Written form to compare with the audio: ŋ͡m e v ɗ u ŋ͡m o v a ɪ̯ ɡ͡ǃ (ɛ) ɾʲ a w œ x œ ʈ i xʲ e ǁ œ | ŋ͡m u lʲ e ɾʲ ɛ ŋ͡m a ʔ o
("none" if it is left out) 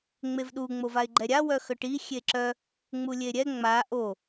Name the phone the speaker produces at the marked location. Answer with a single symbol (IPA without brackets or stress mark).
ɛ